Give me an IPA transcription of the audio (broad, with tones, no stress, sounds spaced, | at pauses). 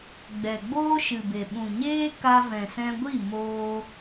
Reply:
ɡ͡b ɛ˨ ɡ͡b oː˦ ʃ ɨ˨ b e˨ ɓ ũ˨ ɲ eː˦ k a˧ v ɛ̃˨ s ɛ̃˧ ɡʷ i˦˨ m oː˧